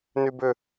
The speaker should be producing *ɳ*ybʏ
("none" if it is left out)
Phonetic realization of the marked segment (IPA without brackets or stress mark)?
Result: n